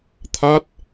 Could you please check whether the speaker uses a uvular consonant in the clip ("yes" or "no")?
no